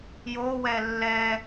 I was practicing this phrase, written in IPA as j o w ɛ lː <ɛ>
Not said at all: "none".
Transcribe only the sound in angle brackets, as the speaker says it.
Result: ɛ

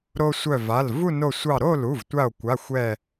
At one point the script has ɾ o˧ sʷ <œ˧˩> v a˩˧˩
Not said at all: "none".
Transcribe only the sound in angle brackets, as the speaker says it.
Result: œ˧˩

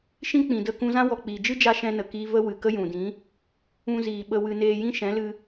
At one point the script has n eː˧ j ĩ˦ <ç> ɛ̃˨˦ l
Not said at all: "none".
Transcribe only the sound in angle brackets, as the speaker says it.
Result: ʃ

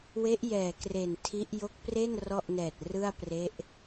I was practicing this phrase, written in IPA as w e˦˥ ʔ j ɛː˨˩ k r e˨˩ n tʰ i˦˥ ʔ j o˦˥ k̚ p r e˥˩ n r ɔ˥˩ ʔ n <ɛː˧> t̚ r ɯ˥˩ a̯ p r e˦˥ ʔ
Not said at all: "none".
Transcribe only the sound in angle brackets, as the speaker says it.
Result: ɛː˨˩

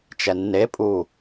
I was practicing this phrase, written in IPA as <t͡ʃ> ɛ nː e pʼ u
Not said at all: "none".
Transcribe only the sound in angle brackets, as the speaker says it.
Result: t͡ʃ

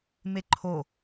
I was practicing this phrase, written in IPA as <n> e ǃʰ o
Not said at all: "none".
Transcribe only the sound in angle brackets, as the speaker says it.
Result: m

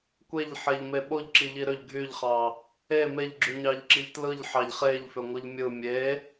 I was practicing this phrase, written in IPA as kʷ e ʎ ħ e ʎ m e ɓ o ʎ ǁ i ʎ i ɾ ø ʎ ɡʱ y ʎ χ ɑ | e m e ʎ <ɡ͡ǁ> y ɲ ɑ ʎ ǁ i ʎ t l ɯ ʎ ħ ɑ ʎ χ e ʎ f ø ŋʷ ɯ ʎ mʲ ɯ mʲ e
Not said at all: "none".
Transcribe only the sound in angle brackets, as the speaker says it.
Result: ɡ͡ǁ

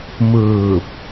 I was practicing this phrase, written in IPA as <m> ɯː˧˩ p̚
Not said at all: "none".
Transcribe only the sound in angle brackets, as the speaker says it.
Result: m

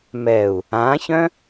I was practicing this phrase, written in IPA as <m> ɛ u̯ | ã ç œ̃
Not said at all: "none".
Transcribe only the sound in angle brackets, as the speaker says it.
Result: m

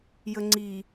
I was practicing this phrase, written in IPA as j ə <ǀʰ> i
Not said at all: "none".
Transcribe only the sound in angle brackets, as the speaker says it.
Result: ŋ͡ǀ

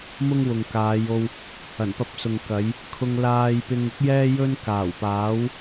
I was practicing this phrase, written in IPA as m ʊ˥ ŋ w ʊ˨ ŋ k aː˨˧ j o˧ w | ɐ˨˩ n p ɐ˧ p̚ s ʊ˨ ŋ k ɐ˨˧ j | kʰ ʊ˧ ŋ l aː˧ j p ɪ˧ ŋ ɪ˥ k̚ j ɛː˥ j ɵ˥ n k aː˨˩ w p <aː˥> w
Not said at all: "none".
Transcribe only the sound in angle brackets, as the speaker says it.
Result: aː˨˥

